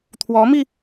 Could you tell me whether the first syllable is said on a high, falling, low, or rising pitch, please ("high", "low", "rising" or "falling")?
rising